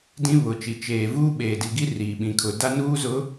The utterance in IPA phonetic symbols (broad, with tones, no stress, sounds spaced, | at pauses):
d ĩ˦ β ʊ˨ t͡ʃ i˨ t͡ʃ eː˨ v uː˦ ɓ eː˨ d i˨ ɡ i˦ r iː˨ ɓ ĩ˨ kʰ ʊ˨ d a˦ n uː˦ z ʊ˨˦